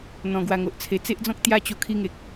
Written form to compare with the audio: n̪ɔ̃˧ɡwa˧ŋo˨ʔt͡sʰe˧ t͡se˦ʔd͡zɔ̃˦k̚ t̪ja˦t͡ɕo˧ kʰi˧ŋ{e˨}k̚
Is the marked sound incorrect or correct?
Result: correct